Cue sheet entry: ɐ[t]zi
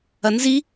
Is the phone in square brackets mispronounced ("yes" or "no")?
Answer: yes